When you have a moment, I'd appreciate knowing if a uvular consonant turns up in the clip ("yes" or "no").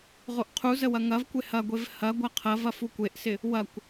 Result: yes